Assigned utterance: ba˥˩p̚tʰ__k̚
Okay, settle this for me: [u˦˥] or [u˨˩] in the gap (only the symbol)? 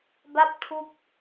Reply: u˦˥